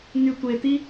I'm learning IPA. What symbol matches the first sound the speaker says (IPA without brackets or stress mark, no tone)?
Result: ŋ